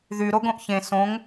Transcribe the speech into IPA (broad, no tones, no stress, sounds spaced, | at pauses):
ð y ɾ o ɡ õ ʔ ç ẽ s õ ŋ